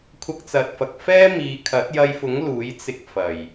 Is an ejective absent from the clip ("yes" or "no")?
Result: yes